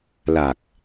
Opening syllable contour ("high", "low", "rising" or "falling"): low